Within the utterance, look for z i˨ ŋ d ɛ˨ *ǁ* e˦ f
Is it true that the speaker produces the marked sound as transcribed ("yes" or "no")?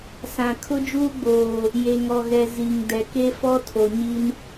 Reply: no